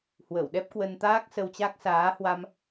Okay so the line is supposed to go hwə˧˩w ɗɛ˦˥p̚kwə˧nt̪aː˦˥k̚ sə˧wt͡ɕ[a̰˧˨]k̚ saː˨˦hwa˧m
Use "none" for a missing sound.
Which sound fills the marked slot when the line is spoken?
a˦˥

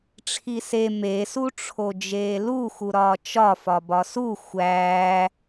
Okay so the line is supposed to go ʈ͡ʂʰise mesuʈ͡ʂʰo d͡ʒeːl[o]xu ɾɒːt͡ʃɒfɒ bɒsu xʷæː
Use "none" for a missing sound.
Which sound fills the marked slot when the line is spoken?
u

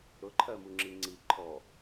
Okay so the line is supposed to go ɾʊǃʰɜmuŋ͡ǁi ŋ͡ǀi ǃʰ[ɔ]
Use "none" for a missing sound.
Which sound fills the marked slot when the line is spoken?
ɔ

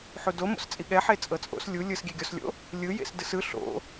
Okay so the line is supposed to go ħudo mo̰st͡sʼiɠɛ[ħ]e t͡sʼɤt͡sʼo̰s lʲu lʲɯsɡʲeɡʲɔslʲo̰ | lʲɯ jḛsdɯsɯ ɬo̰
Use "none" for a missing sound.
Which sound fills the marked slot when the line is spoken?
ħ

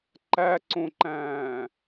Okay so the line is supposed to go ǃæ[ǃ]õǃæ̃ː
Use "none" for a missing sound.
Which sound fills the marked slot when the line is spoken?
ǀ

